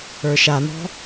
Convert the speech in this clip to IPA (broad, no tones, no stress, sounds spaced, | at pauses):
ə˞ ʃ a n̪ ɔ̤